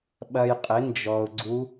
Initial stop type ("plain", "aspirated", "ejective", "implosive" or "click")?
implosive